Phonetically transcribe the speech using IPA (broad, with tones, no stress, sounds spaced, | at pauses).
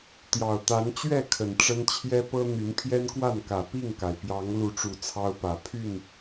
t̪ j ɑ˨˩ ʊ̯ t̪ a˨˦ n t͡ɕ ɥ ɛ˥˨ kʰ ə˨˩ n ʈ͡ʂ ə˦ n t͡ɕʰ j ɛ˦ p ɤ˦ n̪ y˨˦ n pʰ j ɛ˦ n k w a˥˨ n k ä˨˩ p i˥˨ ŋ k a˩ ɪ̯ p j ɑ˨˦ ŋ l u˨˦ ʈ͡ʂ u˨˩ t͡sʰ ɑ˦ ʊ̯ p ä˨˩ pʰ y˥˨ n